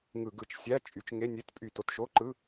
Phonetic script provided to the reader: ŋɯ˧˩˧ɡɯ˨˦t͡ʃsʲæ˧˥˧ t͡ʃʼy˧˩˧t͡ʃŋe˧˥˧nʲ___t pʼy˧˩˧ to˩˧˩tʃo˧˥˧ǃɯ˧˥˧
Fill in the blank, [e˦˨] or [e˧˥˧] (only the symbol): e˧˥˧